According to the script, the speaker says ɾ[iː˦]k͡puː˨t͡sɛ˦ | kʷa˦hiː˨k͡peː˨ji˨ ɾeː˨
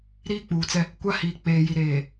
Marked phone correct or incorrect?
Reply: correct